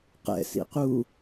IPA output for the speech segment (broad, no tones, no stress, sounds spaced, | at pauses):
q ɛ̰ s ḭ q uː